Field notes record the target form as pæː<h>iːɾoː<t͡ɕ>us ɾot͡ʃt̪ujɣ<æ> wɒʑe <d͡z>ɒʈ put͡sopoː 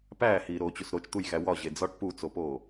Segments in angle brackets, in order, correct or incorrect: correct, correct, correct, correct

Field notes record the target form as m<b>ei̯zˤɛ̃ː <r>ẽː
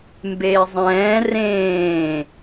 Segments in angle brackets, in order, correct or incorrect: correct, correct

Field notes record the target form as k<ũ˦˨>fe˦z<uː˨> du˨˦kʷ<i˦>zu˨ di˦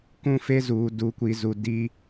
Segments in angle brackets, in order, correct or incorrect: correct, correct, incorrect

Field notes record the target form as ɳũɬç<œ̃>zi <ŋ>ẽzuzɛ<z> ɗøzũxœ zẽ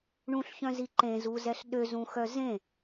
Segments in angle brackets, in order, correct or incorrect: correct, incorrect, incorrect

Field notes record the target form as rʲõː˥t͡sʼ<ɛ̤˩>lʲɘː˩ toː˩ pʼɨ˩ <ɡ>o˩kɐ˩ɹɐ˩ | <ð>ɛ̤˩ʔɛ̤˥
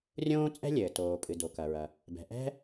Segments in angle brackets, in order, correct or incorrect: incorrect, incorrect, incorrect

